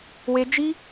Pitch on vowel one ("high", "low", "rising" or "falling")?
high